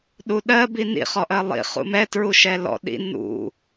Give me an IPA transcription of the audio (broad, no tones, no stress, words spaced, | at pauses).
ɗuɗɜ binḭ χɔʔɜlˠḭ χṵmɛtɹu ʃɛlɔ̰ ɗḭ nṵ